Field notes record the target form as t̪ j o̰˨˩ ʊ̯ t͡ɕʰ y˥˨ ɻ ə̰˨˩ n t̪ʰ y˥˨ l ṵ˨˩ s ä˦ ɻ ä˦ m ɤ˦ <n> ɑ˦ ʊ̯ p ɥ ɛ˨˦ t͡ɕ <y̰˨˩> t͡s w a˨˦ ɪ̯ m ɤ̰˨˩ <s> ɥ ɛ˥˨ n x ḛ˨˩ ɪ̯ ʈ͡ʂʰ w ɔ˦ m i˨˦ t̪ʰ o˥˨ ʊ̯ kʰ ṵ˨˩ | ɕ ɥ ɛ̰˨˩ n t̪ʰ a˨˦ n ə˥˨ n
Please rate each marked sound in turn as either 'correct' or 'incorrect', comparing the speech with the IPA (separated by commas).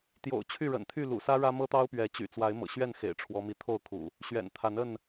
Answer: incorrect, correct, incorrect